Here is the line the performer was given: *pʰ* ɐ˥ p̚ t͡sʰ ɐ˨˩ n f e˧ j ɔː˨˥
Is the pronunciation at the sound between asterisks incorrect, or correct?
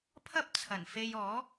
correct